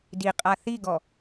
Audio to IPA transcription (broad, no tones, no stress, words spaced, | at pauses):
di qʼaθiɡɔ